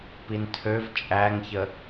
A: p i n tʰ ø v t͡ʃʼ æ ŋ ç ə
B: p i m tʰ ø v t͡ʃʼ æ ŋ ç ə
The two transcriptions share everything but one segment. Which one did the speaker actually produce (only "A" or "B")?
A